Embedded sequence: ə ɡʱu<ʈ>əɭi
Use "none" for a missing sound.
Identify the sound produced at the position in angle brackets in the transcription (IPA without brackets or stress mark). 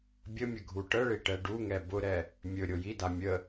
ʈ